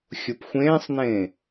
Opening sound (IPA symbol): xʲ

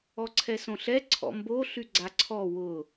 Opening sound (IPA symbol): ɔ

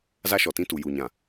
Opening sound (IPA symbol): z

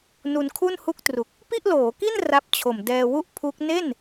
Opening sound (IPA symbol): n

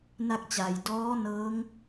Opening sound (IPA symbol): n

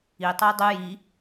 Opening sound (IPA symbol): i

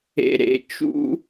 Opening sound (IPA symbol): ḛ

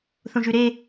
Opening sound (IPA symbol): θ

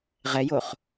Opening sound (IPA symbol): ʁ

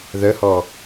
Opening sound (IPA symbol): ð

